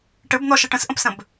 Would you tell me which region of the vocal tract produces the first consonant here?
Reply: retroflex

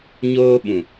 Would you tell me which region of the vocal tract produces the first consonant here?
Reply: palate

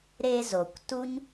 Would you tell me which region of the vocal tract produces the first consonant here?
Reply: tongue tip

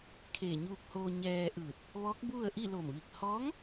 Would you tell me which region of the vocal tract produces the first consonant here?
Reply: velum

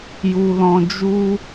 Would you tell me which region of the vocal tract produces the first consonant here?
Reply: palate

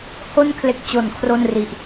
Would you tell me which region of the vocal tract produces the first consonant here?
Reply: throat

